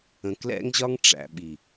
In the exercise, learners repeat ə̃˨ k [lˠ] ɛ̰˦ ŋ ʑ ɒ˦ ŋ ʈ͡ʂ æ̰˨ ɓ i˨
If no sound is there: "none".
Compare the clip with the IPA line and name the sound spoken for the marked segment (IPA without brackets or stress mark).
l